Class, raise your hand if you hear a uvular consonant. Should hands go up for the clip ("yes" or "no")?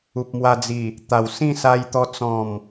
no